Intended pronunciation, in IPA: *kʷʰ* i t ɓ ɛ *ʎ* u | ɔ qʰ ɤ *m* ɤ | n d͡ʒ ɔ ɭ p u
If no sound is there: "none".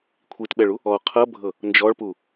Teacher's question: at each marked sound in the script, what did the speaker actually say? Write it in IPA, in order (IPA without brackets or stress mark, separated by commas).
kʷʰ, ɭ, bʱ